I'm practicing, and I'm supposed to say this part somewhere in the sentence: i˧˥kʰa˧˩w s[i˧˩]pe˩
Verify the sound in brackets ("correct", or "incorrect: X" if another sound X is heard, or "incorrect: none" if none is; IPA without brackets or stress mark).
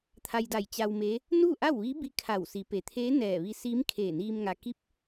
incorrect: i˩˧